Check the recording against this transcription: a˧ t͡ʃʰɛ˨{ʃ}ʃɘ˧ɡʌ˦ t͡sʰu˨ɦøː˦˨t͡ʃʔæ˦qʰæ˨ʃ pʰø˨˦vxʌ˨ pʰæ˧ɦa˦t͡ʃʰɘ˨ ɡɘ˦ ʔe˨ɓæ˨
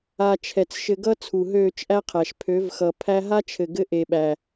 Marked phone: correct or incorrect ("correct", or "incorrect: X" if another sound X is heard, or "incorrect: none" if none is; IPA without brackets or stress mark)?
incorrect: t͡s